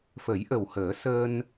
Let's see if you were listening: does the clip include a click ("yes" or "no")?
no